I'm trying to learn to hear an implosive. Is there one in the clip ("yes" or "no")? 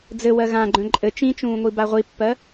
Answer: no